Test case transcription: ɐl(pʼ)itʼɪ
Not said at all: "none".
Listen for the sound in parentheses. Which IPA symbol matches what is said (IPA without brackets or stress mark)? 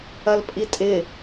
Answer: pʼ